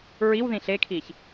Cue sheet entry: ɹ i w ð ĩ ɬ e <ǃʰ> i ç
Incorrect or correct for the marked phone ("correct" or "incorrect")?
incorrect